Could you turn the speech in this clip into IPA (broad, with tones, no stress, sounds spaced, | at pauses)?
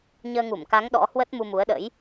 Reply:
ɲ əː˧ ŋ u˧˩ m k a˨˦ ŋ ɗ ɔ̰˧˥ h w ə˦˥ t̚ m u˧ m u˨˦ ə̯ ɗ ə̰˧˥ j